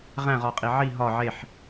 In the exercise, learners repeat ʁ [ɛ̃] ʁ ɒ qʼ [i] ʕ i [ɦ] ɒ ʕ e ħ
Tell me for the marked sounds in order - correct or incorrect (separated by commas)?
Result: incorrect, correct, correct